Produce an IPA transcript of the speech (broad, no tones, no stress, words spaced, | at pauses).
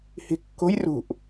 hi̤kːo̤j rṳʔ